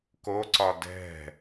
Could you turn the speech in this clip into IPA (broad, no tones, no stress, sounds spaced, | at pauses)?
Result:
k o ǀ ɒ d ɛ̤